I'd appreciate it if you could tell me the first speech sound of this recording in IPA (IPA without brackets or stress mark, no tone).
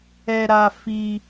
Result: ɛ